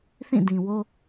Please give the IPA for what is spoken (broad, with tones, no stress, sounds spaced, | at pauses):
θ ĩ˦˨ d ĩ˨ w o˦